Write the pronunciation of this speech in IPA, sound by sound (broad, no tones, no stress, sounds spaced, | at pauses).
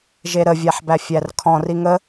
ʒ e ɾ ə vʲ æ ħ b æ fʲ æ r kʰ ɔ̃ r i ŋ ə